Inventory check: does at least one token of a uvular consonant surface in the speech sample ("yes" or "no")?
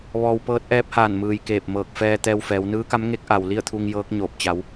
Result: no